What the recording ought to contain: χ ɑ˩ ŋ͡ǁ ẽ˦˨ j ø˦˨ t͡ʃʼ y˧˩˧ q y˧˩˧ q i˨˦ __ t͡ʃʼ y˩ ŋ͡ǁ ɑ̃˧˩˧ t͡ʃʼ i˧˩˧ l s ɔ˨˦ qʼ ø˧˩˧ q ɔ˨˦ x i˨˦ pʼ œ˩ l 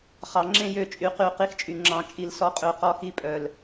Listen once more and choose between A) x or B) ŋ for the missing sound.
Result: A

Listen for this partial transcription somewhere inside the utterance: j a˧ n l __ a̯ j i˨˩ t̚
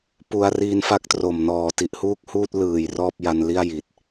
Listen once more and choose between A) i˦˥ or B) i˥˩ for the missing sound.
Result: B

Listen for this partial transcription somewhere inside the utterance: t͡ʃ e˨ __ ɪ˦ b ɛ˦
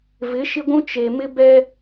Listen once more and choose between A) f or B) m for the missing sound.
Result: B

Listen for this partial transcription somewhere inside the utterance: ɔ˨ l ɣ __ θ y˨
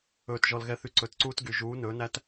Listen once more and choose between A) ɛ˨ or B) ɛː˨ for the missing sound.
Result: A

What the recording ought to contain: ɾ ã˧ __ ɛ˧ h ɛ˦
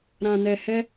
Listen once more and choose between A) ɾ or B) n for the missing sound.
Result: B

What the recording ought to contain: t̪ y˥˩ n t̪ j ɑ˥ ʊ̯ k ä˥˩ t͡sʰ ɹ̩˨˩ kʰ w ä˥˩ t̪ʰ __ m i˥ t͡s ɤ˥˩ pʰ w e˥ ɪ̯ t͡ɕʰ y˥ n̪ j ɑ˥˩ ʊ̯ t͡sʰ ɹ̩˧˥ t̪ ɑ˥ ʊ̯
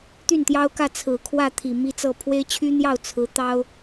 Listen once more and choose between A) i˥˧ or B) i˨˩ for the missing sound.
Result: B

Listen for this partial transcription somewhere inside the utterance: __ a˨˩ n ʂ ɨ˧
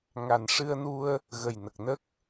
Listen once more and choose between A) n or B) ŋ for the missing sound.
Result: B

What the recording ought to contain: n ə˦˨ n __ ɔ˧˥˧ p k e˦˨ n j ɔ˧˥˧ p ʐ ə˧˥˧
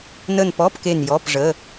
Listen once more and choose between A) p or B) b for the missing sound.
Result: A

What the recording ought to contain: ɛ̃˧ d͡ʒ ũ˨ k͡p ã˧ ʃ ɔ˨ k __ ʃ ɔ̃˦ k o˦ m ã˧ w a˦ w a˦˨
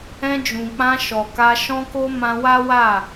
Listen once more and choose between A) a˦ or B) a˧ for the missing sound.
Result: B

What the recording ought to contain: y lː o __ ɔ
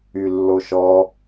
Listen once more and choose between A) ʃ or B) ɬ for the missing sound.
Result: A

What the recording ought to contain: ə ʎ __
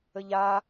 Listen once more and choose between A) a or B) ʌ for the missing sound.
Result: A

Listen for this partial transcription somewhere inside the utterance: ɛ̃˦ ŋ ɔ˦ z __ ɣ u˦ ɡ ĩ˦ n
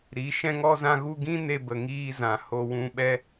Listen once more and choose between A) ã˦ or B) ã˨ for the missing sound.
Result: A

